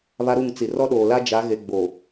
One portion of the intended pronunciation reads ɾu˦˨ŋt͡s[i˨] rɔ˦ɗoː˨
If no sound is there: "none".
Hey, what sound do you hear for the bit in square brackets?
i˨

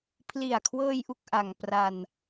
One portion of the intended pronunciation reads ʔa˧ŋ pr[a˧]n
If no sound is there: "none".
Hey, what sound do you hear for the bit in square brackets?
a˧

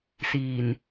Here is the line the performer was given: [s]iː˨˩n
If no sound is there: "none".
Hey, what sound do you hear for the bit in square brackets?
s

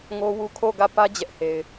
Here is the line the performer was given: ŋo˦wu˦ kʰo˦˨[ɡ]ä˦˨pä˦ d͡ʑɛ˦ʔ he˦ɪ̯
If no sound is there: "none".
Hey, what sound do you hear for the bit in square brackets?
ɡ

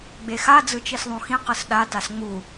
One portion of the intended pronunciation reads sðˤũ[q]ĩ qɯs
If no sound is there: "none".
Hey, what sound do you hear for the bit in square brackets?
x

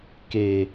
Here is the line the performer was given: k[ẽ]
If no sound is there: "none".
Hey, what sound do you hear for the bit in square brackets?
e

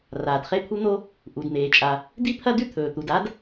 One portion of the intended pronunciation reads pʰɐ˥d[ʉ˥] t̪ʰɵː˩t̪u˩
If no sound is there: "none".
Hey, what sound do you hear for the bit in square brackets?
ʉ˥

